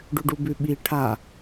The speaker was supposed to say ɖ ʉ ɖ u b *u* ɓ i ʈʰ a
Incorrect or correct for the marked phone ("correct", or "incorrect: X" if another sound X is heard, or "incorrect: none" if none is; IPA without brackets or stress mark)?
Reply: incorrect: ʉ